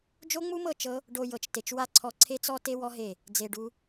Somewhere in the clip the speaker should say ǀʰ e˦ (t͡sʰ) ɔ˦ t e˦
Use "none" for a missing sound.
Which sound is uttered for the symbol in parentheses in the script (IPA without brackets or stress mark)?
t͡s